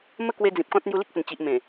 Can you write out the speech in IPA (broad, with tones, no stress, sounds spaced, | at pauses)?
m ə˦ k w e˧ d͡z ĩ˨ p̚ k ɔ̃˦ t̚ n̪ j u˧ l i˦ k̚ h ə˨˩ n t͡ɕ i˨ ʔ m ẽ˨˩